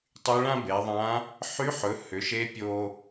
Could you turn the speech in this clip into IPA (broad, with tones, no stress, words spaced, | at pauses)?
tˤy˧˥ɭã˥be˩˧ðˤã˧˥ | ħy˧˥ħɵ˩˧ hʏ˩˧ʃe˧˥ pʲo˧